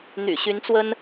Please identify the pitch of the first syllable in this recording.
low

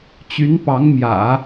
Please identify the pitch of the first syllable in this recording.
rising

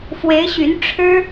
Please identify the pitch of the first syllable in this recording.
rising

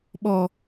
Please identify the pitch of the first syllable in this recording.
low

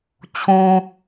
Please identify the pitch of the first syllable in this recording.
low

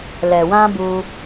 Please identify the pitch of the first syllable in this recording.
low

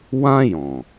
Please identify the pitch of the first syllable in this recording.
high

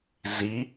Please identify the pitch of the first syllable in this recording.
rising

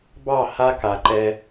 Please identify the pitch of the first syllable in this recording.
falling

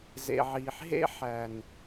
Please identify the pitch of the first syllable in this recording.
low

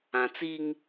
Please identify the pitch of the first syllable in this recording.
low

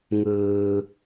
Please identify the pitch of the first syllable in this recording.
low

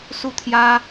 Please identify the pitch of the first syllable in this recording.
falling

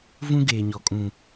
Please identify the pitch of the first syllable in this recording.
high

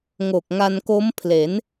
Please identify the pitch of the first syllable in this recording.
low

